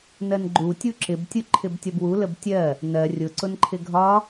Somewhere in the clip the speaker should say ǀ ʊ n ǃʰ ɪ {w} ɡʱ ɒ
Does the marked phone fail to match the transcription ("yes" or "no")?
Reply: yes